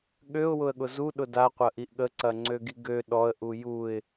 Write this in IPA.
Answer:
ɠ ø ʊ̯ w ʊ ə̯ ɠ ʊ z u ɗ ʊ d a qʷ ɐ ʔ i ʔ ɠ ə ǀ ɐ ŋ͡ǀ ø ɡ i ɡ ø ɗ ɔ ə̯ ʔ u j u ɪ̯

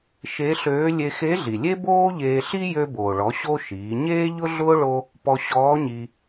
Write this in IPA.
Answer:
ʃ e˧˥ ɬ øː˧˥ lʲ e˧ x e˧˥ ɮ i˩ lʲ e˥ b oː˥ ʎ eː˧ ɬ i˥ j ø˧ b oː˩ ɭ ɔ˩˧ ɕ o˥ ʃ iː˩˧ ɲ eː˥ ʎ ʊ˥ ɮ ʊː˥ ɭ o˥ | p ɔ˧ ɕ ɔː˧˥ ɲ i˧

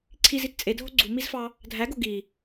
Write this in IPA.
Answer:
ǀʰ i z i t t͡sʼ e dʱ o ɡ͡ǀ u m i z f ɑ | dʱ æ ɡ o ɡ i

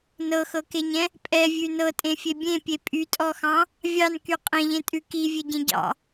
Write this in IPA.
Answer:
n ɤ x ɤ k e ɲ ɛ̃ | pʼ ɛ vʲ ʉ n ɤ tʼ ẽ fʲ e bʲ ẽ pʲ e pʼ y tʼ ɔ x ɑ̃ | vʲ ɑ n k y qʼ ẽ ʎ ẽ tʼ ʉ k i vʲ e ɟ ẽ ɟ ɑ̰

